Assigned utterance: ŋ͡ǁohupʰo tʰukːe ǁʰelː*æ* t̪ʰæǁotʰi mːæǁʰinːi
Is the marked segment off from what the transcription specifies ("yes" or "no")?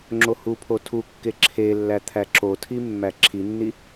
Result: no